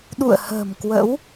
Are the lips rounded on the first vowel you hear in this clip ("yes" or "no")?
yes